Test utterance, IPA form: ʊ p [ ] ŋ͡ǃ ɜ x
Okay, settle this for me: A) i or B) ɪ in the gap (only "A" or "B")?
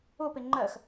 B